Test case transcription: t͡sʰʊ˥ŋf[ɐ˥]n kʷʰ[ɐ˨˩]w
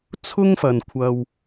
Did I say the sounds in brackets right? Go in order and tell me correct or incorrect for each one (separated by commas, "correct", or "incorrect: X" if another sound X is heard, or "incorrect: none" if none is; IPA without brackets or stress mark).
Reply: incorrect: ɐ˨, incorrect: ɐ˧